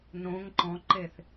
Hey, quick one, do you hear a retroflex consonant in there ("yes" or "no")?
no